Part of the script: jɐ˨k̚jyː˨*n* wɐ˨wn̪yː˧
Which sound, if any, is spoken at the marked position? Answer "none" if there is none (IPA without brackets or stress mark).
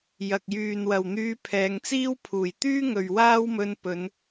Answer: n